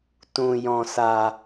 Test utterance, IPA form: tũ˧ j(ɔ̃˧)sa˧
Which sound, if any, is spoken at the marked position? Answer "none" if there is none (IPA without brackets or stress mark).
ɔ̃˧